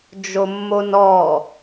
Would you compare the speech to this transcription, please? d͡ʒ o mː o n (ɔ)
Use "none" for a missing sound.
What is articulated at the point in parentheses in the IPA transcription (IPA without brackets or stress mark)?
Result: ɔ